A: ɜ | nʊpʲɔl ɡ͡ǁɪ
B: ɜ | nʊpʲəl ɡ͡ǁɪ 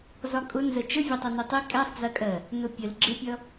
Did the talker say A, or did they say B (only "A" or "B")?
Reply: B